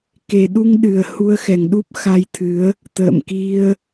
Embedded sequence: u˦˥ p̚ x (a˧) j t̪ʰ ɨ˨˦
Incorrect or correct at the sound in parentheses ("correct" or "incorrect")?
correct